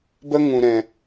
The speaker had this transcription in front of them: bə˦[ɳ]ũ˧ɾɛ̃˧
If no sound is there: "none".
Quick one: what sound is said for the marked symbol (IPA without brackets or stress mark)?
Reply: ŋ